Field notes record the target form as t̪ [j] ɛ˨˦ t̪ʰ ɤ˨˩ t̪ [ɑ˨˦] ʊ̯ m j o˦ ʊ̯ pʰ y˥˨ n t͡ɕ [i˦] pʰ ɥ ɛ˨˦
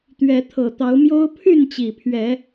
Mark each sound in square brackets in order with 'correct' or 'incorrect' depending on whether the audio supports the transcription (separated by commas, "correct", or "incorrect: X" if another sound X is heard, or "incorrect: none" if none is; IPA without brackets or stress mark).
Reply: incorrect: ɥ, correct, incorrect: i˨˩